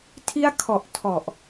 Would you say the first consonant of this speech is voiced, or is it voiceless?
voiceless